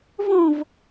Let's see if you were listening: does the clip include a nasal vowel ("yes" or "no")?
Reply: yes